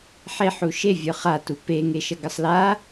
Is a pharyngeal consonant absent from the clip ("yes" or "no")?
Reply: no